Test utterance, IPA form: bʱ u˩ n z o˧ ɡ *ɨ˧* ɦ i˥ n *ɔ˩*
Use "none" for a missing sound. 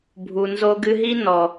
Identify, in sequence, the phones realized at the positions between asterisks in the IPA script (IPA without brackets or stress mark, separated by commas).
ɨ˧, ɔ˩